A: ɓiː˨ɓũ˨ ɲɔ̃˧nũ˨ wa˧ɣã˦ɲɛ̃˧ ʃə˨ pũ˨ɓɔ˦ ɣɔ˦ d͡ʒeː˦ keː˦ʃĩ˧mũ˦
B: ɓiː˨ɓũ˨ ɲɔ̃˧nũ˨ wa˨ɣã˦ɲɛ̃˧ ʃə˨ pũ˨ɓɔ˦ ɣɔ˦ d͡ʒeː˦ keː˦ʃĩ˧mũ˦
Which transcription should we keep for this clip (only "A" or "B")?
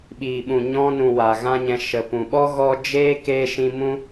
B